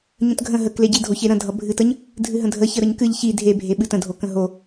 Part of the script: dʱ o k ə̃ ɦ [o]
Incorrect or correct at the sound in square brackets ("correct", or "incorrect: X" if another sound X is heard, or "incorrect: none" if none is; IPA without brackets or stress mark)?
correct